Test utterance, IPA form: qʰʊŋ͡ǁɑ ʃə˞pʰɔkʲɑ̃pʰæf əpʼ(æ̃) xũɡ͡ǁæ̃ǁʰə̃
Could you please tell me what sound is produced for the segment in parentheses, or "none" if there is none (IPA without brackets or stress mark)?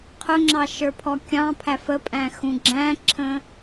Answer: æ̃